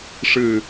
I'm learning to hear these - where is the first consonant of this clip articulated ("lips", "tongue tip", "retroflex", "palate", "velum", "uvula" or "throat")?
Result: retroflex